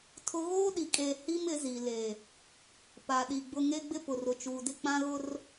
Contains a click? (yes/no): no